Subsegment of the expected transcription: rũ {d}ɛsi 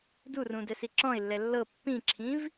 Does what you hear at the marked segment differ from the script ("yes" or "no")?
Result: no